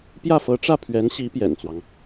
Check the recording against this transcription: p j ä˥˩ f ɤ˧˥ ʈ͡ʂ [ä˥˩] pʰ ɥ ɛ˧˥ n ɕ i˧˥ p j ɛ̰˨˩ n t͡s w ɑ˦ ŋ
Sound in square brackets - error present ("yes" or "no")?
no